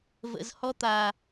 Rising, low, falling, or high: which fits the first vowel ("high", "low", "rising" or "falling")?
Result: low